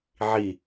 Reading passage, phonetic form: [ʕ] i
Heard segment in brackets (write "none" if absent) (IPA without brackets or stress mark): ʕ